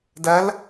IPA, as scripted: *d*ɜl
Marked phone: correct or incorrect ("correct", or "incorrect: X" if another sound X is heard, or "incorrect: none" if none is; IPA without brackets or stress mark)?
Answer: correct